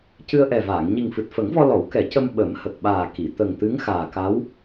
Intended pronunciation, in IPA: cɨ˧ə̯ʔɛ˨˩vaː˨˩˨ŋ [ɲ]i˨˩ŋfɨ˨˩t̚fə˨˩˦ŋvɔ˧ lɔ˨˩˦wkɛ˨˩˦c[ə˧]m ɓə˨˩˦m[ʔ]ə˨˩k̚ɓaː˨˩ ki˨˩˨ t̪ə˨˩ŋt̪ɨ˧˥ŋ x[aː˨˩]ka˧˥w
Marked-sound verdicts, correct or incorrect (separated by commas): correct, correct, incorrect, correct